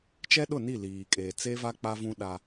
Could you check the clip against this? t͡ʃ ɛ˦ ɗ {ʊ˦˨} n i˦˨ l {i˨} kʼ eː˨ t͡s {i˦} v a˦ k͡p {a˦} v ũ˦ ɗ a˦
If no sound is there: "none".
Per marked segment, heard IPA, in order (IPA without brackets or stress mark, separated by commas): ʊ˦˨, iː˨, e˦, a˦